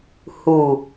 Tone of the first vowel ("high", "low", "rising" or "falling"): low